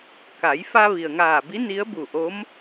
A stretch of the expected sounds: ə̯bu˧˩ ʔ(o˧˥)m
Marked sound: correct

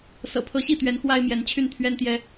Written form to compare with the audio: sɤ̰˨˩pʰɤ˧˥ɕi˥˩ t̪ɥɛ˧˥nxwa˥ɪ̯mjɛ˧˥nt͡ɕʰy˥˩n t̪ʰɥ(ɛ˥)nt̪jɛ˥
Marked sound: correct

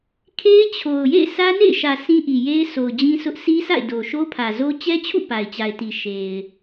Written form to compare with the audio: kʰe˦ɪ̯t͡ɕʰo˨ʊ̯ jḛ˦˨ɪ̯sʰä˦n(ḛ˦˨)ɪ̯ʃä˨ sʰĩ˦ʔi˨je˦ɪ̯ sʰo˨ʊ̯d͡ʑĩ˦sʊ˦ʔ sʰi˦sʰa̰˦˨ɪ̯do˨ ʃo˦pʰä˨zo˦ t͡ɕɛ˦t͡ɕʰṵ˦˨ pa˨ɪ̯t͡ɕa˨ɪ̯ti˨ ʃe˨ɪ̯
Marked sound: correct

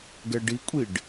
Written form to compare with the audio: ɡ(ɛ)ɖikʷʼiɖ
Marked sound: correct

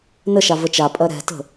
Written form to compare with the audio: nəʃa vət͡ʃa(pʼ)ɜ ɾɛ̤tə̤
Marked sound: correct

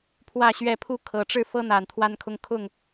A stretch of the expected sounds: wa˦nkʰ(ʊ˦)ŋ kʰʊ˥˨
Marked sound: correct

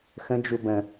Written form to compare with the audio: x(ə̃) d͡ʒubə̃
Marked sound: correct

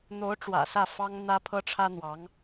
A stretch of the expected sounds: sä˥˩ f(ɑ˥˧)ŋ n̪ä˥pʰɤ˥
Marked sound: incorrect: ɑ˥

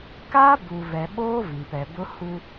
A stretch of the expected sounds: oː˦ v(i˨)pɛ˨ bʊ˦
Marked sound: correct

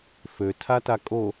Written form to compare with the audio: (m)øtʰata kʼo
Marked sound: incorrect: f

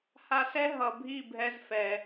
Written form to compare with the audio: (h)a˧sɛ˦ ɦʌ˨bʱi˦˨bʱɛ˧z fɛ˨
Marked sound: correct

